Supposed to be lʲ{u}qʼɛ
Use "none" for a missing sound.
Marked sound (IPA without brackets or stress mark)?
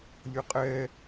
ʊ